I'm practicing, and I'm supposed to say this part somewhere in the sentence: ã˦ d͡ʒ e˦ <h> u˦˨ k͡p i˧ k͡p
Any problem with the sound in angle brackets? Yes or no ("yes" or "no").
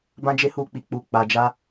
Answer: no